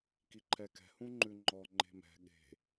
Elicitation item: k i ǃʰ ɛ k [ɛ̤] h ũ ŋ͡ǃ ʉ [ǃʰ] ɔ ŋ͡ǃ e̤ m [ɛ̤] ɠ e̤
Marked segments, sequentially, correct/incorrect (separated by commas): correct, incorrect, correct